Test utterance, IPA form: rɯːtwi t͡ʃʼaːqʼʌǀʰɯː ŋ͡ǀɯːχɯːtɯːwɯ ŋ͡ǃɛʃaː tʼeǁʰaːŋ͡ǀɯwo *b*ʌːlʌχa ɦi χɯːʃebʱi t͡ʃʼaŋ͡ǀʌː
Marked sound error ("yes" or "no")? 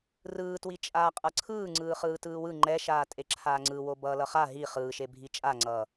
no